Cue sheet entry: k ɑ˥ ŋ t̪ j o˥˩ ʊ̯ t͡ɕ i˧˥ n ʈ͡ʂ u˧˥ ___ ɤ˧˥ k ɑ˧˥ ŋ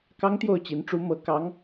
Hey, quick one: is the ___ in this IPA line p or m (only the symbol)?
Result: m